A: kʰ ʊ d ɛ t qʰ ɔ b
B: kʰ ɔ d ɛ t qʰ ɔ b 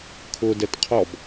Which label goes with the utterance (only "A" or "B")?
A